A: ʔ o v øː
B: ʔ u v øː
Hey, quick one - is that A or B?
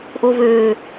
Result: A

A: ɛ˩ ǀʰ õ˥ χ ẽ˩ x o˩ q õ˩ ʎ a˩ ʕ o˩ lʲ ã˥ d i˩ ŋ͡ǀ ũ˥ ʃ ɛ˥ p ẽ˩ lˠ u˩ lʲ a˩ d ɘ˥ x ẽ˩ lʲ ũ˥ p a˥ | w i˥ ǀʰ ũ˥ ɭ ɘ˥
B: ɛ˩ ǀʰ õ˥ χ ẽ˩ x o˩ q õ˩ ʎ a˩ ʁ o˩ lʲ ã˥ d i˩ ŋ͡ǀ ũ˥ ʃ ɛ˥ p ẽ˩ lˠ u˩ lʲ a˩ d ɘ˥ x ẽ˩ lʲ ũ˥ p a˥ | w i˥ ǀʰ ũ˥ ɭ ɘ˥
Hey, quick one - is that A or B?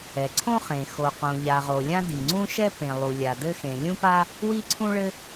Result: B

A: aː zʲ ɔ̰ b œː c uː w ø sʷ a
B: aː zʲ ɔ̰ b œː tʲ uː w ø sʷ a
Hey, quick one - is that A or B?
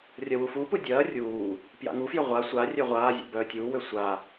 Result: B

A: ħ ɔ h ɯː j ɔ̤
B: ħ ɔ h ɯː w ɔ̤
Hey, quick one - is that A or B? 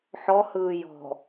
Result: A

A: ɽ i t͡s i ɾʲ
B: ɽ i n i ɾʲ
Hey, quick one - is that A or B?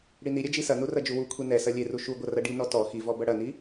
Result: B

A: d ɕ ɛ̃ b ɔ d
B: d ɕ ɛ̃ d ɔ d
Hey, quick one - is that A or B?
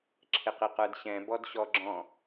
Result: A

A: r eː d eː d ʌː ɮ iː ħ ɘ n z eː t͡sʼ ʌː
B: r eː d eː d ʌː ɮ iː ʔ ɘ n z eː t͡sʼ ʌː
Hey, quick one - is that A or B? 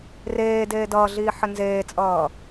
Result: A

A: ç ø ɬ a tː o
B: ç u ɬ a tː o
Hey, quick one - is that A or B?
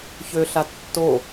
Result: A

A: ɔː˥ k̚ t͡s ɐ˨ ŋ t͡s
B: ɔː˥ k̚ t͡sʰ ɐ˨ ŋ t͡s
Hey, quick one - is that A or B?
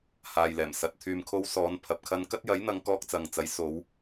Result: A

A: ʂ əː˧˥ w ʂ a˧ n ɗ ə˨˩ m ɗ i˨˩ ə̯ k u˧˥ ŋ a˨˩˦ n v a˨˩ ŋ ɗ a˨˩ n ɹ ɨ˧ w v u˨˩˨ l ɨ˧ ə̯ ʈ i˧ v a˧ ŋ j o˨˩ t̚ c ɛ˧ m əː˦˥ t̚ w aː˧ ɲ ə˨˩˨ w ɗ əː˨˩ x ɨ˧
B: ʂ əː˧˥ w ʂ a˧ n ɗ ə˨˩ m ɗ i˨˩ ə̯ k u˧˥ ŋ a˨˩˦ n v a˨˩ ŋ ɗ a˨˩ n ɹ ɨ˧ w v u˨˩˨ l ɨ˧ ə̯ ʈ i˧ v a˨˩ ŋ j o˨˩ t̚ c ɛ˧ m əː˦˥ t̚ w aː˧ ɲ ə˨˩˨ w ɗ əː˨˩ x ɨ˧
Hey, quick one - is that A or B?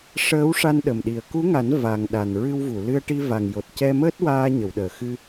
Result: B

